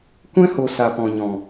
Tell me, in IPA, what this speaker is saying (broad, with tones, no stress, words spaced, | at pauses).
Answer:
kʷɛ̃˦ho˨ sa˨pɔ̃˨ɲɔ̃˨